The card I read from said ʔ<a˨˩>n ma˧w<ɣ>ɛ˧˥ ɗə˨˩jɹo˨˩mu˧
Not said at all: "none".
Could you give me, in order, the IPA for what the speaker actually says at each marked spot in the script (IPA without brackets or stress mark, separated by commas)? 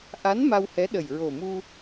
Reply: a˧˥, h